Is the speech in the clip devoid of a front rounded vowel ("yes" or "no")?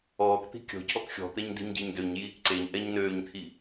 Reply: no